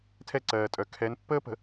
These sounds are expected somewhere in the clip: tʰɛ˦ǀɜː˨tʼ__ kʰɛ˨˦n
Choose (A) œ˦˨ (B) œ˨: B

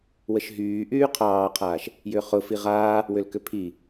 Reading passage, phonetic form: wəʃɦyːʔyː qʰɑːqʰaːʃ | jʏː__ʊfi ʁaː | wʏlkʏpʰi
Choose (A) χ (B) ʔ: A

